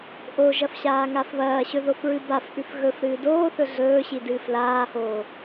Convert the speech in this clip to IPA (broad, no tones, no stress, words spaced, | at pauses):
ʔoʒɐfɕaː ŋafβɐːɕɵ ðofɹɨbafʔʉf ɣɵf ɾɨːdoːθɵ ɮɵːɕi dɨːflaːhoː